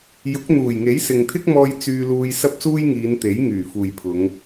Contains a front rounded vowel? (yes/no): yes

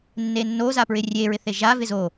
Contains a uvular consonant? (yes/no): no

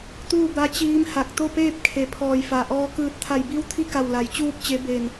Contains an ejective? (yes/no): no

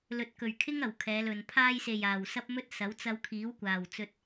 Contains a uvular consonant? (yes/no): no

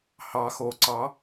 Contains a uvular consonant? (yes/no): no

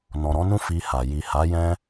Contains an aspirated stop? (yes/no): no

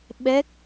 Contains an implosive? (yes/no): yes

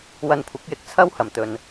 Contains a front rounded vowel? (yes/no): no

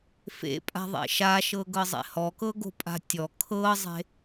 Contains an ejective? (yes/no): yes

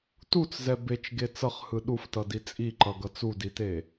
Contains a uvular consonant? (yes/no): yes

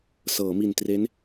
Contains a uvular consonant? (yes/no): no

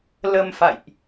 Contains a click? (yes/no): no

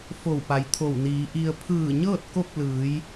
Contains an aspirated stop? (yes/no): yes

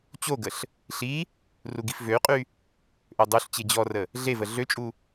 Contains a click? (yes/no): no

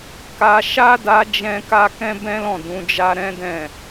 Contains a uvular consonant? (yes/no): no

